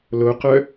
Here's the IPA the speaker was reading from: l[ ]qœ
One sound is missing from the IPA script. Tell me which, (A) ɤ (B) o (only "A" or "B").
B